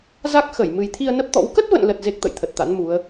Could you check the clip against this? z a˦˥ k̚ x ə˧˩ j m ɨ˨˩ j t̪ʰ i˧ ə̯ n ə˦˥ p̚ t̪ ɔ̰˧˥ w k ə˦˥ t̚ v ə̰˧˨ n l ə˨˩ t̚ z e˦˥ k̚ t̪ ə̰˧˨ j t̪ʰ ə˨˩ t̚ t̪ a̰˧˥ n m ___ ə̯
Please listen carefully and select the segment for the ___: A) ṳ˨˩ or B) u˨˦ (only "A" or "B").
B